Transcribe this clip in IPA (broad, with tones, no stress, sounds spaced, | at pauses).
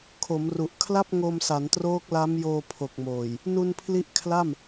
kʰ o˩˦ m r u˨˩ ʔ kʰ l a˥˩ p̚ ŋ o˧ m s a˩˦ n t r oː˦˥ k̚ l a˦˥ m j oː˧ pʰ o˨˩ k̚ m oː˨˩ j | n u˧ n pʰ l i˦˥ ʔ kʰ l a˥˩ m